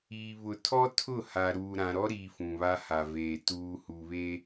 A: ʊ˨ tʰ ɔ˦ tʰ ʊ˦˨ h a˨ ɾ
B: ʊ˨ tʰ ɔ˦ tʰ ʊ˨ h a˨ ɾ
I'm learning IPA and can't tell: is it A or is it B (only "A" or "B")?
A